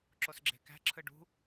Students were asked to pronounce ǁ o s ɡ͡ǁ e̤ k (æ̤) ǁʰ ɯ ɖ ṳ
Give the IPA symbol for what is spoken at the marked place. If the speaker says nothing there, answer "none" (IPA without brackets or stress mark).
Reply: æ̤